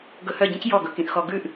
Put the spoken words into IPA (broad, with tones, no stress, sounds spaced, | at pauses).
ɡ ɵ˧ h œ˥˩ ɟ ĩ˥ c j ɔ˥˩ ɡ ɵ˩ k ĩ˧ ʔ x ɔ˧ ɡ ʉ˥˩ ʔ